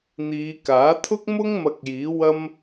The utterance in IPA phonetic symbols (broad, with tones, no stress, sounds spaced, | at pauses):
n̪ iː˨˧ k aː˨˥ t̪ʰ ʊ˥ k̚ m ʊ˥ ŋ m ɐ˧ k̚ j iː˨˥ w ɐ˥ m